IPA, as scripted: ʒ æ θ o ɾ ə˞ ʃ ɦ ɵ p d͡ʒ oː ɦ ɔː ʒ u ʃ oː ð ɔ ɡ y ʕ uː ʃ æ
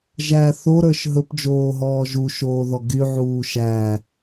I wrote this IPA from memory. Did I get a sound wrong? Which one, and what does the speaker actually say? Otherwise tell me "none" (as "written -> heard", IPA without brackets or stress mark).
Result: none